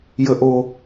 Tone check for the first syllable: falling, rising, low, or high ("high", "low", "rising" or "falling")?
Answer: high